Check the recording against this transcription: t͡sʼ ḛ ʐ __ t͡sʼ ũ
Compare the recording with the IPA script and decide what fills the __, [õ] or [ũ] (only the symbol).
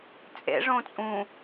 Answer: õ